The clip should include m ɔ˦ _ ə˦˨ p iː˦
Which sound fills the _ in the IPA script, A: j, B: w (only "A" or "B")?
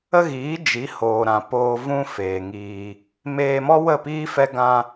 B